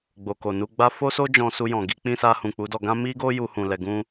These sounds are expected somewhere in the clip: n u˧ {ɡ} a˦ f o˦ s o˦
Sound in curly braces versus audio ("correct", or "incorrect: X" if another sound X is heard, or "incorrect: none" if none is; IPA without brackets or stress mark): incorrect: ɡ͡b